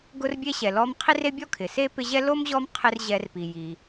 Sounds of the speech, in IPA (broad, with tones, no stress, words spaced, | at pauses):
ɡʊ˦rbʲe˦ ɕɛ˨lɔ˦m qʰi˥re˥bʲɔ˥kʰɪ˩ se˥pɪ˦ʑɛ˥ lo˥mʑɔ˦m qʰɪ˦r ʑɛ˨rpi˩ji˩